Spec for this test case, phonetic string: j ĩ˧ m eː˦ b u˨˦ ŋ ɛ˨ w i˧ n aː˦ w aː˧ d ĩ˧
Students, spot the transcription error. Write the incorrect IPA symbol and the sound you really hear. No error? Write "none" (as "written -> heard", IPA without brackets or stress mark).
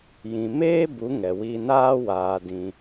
none